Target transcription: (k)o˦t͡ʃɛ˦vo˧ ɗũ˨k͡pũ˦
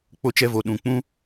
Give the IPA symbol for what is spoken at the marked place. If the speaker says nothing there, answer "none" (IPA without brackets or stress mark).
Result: k͡p